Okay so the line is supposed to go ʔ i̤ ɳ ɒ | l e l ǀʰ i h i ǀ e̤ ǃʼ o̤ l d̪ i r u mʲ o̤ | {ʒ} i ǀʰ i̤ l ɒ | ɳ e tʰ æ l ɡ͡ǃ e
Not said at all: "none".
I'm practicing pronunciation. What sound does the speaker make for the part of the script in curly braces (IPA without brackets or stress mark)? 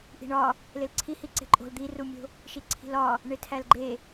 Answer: ʃ